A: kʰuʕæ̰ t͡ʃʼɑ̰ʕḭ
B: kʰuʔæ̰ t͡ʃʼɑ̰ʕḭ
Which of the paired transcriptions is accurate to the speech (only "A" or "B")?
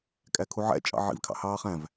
A